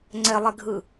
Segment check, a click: present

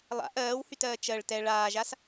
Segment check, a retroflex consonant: present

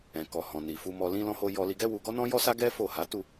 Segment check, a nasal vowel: present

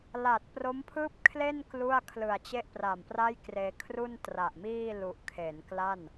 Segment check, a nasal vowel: absent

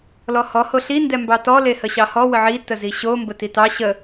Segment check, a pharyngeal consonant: present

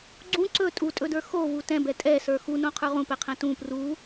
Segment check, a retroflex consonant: absent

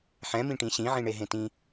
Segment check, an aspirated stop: absent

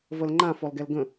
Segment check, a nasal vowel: present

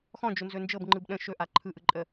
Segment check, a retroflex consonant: absent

